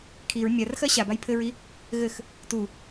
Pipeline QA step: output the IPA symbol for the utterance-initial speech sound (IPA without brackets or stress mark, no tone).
kʰ